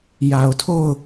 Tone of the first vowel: low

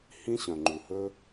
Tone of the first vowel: high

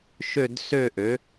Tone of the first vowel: falling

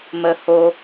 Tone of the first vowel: low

